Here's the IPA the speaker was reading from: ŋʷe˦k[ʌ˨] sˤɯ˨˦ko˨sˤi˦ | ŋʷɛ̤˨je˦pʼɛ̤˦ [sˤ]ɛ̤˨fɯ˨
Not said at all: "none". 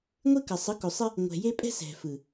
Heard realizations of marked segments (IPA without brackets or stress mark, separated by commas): ʌ˨, s